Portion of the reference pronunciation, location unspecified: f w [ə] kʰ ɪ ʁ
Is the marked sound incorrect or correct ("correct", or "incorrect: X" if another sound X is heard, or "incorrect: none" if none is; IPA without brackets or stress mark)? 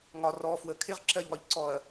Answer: correct